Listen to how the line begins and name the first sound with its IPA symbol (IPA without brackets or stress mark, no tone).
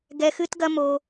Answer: ɡ